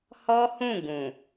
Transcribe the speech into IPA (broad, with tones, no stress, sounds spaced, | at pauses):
h ɔ˦ h ũ˦˨ ɡ ũ˨